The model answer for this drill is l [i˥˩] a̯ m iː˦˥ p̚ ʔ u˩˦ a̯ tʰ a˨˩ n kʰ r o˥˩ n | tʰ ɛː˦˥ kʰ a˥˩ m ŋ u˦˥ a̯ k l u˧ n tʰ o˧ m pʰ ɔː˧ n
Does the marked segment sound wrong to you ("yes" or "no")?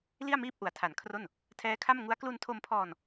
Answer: no